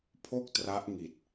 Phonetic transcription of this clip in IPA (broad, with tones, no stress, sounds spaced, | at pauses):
pʰ o˥˩ k̚ t r a˦˥ ʔ ŋ i˨˩ t̚